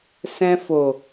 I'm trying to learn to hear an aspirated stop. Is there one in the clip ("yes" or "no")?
no